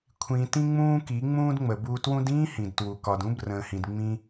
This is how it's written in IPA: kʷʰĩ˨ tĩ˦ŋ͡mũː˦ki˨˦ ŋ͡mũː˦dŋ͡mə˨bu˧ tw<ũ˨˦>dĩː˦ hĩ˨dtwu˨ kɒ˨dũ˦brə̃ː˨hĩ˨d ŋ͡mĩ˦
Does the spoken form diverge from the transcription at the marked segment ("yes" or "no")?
yes